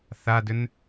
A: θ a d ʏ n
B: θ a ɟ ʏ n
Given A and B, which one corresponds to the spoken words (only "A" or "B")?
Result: A